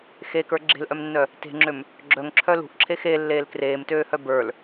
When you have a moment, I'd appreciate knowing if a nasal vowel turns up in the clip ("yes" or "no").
no